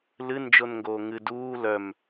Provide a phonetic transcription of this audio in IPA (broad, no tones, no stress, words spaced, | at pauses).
lɨnd͡ʒonŋɡoː ŋɨ duː lœm